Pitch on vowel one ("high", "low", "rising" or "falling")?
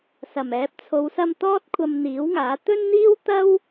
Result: low